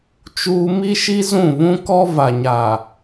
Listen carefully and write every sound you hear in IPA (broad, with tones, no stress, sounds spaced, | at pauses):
t͡ʃ uː˦ m i˦ ʃ i˦ z ũ˦˨ β ũ˦ k ɔ˦ v a˨ ɲ aː˨